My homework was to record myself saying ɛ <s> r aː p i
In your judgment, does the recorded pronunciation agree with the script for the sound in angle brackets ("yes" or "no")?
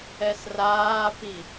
yes